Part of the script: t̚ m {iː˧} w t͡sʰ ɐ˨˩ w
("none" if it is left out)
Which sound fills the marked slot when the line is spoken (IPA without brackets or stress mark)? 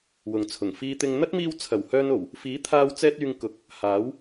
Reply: iː˧